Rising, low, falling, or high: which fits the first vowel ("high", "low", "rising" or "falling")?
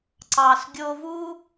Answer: low